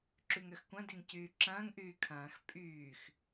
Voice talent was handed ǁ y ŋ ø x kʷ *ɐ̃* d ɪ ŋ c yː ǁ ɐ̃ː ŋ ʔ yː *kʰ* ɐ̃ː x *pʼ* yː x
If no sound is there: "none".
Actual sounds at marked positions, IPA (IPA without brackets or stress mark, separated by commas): ɐ̃, kʰ, pʼ